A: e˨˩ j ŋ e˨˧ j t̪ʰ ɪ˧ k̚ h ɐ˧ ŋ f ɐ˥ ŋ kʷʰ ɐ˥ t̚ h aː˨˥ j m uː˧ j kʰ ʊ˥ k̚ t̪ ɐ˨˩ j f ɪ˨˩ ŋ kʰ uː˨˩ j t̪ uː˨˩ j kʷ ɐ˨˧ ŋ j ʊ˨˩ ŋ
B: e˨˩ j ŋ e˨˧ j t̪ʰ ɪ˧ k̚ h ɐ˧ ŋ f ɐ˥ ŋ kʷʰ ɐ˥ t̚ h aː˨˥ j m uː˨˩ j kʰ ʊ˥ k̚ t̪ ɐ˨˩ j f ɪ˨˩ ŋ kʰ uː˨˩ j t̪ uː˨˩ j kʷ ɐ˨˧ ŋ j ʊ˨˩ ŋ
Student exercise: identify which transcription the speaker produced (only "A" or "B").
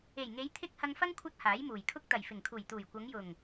B